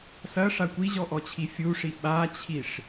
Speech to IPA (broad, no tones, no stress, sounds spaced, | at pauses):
s ɐ ʂ a kʷ i ʑ ɔ ʔ ɔ t͡ɕʰ i fʲ u ʂ i ɓ a t͡ɕʰ i ʂ